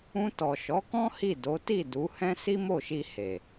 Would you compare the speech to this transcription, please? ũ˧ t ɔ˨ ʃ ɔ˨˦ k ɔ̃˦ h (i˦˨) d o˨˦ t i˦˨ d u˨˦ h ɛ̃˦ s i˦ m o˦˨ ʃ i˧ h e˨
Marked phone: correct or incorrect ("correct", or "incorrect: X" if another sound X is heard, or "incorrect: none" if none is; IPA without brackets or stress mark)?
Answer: correct